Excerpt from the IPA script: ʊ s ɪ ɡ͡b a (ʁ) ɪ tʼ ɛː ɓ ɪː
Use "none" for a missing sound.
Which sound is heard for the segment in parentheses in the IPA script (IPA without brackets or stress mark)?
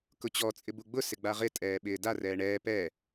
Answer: ʁ